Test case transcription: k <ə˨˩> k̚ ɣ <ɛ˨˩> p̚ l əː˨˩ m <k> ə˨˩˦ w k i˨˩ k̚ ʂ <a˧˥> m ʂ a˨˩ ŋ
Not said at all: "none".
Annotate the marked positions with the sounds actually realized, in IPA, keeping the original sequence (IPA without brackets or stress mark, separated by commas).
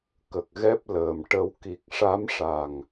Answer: ə˨˩, ɛ˦˥, ʈ, a˧˥